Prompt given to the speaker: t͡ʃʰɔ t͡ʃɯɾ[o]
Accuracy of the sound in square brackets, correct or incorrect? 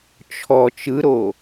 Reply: correct